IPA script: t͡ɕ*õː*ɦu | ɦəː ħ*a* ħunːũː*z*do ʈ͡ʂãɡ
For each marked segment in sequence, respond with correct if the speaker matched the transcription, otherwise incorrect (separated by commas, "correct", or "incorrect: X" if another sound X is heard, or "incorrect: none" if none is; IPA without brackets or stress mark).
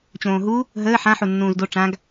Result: correct, incorrect: ã, correct